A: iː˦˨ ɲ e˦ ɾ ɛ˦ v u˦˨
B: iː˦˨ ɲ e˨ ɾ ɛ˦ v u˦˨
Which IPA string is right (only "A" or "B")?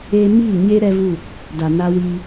A